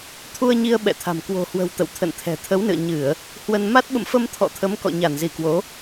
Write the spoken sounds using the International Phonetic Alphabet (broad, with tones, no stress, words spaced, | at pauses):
t̪ʰu˧ə̯ɲi˧ə̯ ɓɛ̰˧˨t̪ʰa̤˨˩m kwo̤˨˩hwə̤˨˩w t̪ə̰˧˨wt̪ʰə̰˧˨nt̪ʰɛ̤˨˩ t̪ʰə˨˦wnɨ̰˧˨ə̯ ɲɨ˧˩˨ə̯ | hwə˧n ma˦˥t̚ɓə̰˧˨mfə˧m t̪ʰɔ̰˧˨t̪ʰə˨˦m kɔ̰˧˨ɲa˧˩nzi˧˩kwo˨˦